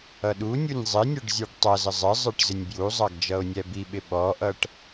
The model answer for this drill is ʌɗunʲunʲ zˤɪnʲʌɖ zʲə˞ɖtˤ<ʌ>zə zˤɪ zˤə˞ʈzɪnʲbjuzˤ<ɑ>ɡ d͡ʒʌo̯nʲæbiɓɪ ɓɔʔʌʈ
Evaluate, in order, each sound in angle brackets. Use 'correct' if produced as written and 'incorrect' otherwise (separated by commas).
correct, correct